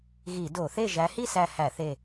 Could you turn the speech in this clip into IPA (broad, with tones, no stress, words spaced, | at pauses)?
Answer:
ɣi˧˩˧do˧˩˧θe˥˨ ʒæ˨˦hi˥˨sæ˧˩ hæ˧˩˧θe˧˩